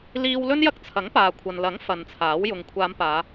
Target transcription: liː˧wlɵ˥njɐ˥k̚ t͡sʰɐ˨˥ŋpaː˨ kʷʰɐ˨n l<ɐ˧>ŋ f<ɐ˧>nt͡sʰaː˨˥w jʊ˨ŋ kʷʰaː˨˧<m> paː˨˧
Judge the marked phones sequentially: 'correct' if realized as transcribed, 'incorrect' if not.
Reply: incorrect: ɐ˨˥, incorrect: ɐ˨, correct

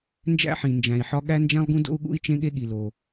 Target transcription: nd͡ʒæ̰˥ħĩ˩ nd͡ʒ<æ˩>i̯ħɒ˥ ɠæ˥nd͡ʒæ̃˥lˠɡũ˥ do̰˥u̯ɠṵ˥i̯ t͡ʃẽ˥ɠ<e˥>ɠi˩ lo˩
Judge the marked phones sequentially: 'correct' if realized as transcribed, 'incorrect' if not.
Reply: incorrect: æ̃˩, correct

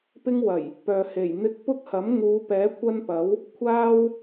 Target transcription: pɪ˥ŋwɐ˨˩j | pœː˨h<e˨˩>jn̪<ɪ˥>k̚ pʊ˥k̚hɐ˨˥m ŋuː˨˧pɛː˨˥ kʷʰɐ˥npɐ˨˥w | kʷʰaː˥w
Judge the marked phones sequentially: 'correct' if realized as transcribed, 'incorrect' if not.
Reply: correct, correct

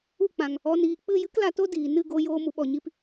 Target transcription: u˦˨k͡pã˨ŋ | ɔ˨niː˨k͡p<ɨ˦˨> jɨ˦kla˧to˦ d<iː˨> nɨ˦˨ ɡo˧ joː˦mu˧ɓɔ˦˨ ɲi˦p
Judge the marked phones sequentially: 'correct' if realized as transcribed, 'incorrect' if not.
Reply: correct, correct

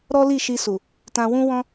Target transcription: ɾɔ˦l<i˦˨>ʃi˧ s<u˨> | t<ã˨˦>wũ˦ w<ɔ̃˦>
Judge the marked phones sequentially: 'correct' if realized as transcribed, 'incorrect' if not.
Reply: correct, correct, incorrect: ã˧, correct

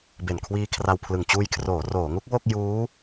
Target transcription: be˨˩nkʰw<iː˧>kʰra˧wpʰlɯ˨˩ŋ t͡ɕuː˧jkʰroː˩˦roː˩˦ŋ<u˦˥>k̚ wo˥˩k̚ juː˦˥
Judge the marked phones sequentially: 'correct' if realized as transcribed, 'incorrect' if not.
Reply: correct, correct

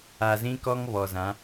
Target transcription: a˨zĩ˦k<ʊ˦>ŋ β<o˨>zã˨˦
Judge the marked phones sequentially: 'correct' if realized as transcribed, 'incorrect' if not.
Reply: incorrect: ɔ˦, incorrect: ɔ˨

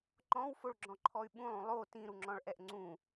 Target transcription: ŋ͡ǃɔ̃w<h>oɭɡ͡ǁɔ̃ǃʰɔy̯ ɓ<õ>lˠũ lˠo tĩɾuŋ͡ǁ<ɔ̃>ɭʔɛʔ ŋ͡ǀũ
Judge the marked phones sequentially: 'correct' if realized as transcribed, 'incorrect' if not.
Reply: incorrect: f, incorrect: ũ, correct

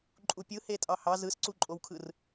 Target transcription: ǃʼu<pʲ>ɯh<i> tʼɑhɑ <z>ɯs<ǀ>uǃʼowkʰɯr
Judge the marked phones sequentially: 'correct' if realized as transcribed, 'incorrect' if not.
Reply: correct, incorrect: e, correct, correct

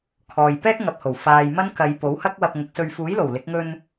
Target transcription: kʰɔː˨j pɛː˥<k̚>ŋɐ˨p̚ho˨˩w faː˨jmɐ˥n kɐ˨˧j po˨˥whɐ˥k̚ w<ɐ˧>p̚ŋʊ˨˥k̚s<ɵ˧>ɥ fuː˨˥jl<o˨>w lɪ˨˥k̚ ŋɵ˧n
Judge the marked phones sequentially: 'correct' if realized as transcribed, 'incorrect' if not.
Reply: correct, correct, correct, incorrect: o˨˩

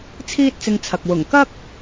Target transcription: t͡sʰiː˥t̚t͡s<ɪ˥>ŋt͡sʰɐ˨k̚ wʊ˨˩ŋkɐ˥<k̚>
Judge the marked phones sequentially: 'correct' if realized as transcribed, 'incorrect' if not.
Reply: incorrect: ɪ˧, correct

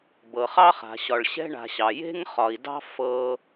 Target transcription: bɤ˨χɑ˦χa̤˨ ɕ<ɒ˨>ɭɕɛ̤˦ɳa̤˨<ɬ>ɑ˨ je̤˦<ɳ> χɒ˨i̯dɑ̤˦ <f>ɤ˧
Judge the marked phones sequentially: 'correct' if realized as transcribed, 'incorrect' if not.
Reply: correct, incorrect: ɕ, incorrect: ŋ, correct

